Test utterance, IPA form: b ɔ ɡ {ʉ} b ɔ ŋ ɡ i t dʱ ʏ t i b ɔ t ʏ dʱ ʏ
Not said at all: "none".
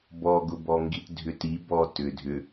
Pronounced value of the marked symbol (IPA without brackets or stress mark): ʊ